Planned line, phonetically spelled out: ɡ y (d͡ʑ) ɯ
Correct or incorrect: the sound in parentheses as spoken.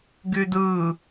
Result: incorrect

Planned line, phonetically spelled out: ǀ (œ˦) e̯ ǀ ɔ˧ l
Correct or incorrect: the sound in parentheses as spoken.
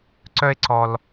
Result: correct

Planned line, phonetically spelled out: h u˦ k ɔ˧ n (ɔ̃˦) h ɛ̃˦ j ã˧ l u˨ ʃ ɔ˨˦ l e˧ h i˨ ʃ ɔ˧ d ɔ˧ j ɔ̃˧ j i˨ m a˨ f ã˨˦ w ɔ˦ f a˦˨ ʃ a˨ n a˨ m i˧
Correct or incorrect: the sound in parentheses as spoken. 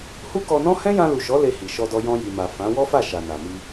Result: correct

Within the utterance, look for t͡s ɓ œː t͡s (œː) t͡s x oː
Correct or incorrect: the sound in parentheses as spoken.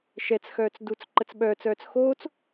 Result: correct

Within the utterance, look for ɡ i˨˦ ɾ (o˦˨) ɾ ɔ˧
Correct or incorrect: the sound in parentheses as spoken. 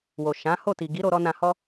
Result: incorrect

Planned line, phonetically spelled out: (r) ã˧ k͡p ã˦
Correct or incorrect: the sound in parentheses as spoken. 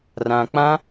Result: correct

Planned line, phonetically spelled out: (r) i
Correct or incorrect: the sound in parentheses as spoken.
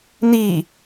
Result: incorrect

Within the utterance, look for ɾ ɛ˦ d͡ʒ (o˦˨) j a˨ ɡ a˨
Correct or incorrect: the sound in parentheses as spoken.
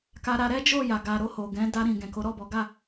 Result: correct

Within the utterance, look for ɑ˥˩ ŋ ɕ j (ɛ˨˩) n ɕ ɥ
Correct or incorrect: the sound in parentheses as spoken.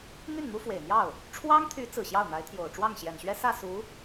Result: correct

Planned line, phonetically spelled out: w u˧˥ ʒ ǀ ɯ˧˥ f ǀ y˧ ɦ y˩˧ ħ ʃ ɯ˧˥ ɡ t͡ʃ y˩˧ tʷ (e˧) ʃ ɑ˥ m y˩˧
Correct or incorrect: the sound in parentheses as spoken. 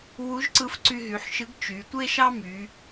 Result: incorrect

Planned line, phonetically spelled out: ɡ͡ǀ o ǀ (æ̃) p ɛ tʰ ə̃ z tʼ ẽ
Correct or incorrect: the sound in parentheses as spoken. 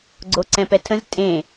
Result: incorrect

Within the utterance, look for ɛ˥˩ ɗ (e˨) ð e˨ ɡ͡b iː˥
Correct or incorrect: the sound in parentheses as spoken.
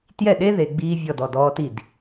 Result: incorrect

